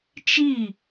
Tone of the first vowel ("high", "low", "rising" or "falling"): falling